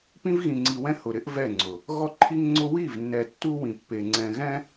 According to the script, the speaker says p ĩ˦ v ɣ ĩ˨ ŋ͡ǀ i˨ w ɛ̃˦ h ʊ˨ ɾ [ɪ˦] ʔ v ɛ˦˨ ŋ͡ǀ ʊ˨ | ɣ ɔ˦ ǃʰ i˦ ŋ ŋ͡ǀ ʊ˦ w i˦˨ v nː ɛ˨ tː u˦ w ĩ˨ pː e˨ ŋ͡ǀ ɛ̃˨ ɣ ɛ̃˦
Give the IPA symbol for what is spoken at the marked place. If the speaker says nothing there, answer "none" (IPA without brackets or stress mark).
ɪ˦